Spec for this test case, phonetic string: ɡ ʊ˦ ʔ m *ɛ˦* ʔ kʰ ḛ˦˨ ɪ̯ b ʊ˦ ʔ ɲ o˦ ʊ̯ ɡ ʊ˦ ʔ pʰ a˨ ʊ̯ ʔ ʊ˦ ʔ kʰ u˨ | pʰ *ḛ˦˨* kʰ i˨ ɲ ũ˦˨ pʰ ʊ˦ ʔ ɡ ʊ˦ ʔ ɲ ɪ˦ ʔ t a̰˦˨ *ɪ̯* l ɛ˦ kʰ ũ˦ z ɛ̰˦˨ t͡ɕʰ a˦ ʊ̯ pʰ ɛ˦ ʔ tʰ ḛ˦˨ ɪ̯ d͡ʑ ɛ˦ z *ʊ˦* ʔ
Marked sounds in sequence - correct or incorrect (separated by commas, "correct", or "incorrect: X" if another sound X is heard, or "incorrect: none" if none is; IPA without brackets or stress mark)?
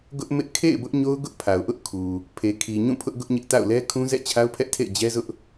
incorrect: ɪ˦, incorrect: e˨, incorrect: ʊ̯, correct